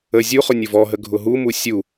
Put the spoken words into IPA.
ə zʲuχʊ nʲʊvɔɦə ɡʱʊɦumu sʲu

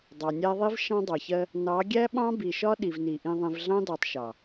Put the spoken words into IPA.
dˤɑ˨nʲæ˦ ðˤi˦v ʃɑ̃˦dˤɑ˨çɜ˦ | nɑ˨˦ ɡʲæ˦ɓɑ̃˦bi˨ʃɒ˦ ɗi˨vni˨ ʔĩ˨ðˤĩ˨vɮɑ̃˦dɑ˨tˤ ʃɑ˨

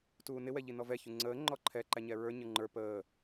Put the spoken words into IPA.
tuːnɪ wɛʎinɔvɛ çuŋ͡ǀəː ŋ͡ǃɔǃʰɛ ǃæɲɛɹə˞ ɲə˞ŋ͡ǃə˞ pəː

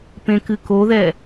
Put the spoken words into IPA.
pẽkɨkoðɛ

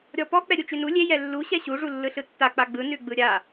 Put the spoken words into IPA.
ɾʲɔpɔ k͡pɛɾʲut͡ʃʉnu lʲe jɛlːu ɕɛɕu ʐulːɯɬɯtːa k͡paɡ͡bɯ nʉɡ͡bɯɾʲa

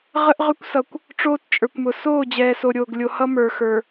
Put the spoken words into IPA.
ʁə˦ʔʁʏ˦kʷsʌ˨kʷ | ʈ͡ʂoː˦tt͡ʃʼə˞˨kʷmʊ˨ soː˦˨d͡ʑɛː˨so˨ ɾʲoː˨ɡ lʲo˨hʌ˦ mə˞˨xə˞˨

